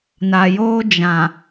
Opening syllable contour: low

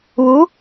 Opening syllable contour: rising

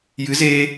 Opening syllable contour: rising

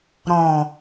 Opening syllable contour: low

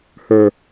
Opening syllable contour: high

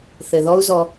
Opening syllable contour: low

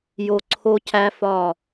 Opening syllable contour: low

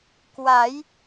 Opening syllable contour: rising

